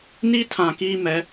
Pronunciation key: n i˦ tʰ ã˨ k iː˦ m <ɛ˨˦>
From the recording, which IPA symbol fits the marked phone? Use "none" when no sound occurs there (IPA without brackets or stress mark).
ɛ˨˦